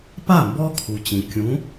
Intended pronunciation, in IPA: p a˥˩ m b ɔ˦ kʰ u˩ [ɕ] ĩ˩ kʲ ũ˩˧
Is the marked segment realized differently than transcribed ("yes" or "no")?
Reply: yes